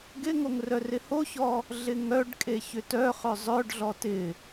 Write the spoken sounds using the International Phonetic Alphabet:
ɡ ɪ ŋ o ŋ r œ r ɪ h o ç ɔ | ɮ ɪ ŋ œ ɖ kʼ e ç ʏ t œ χ œ zˤ œ ɖ ɮ ɔ t ɪ

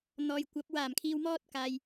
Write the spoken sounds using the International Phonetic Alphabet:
n̪ ɔː˨ j kʷ ɐ˨˥ p̚ w aː˨˩ m kʰ iː˨ w m ɔː˥ t̚ k aː˨ j

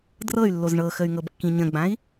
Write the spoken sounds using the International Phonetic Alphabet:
d r ɤ y̯ lː o z ɳ ɤ x ə y̯ ŋ ɤ b kː ĩ ɲ ə̃ ɡ͡b ã i̯

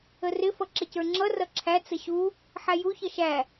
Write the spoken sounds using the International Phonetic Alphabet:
ə r ɪ f ʌ ǁ ɪ c ə˞ ŋ͡ǁ ʌ r ʌ ǁʰ æ t͡s ə ɕ u | ħ æ j u ç ʌ ʃ æ

